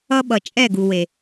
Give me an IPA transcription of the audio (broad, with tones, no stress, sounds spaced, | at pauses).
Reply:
ʌ˦ ɓ ʌ˨ t͡ʃʼ ɛ˦˨ ɡ u˨ w e˨